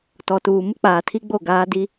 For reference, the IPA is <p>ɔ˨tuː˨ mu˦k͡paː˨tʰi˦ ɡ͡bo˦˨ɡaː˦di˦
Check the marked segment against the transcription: incorrect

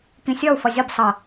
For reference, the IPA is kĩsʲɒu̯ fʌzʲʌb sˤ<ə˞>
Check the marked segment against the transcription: incorrect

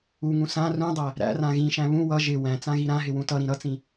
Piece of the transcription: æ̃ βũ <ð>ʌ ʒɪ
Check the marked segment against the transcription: incorrect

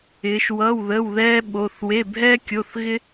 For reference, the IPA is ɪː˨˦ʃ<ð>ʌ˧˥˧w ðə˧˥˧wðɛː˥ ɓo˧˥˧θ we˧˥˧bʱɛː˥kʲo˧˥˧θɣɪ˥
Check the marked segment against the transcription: incorrect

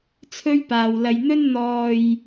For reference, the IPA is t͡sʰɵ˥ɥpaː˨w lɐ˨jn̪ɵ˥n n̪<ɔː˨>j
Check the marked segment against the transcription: correct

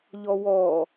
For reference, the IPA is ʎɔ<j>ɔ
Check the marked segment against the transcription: incorrect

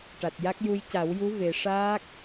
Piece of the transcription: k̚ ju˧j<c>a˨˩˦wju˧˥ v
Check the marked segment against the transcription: correct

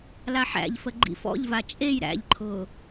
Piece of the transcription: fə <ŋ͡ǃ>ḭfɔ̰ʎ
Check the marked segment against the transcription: incorrect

